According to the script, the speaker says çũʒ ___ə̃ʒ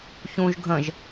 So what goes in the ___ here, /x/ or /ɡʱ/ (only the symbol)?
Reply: ɡʱ